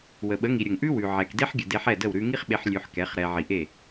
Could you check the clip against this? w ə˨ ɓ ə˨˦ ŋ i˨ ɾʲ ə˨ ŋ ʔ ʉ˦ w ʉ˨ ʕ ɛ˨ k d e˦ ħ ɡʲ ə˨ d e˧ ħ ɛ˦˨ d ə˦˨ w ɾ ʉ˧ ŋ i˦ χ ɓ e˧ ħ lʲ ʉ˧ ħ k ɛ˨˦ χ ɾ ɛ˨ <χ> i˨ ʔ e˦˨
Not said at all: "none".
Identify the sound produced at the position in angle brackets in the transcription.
ʕ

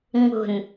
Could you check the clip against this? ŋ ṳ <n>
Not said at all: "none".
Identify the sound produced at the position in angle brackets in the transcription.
n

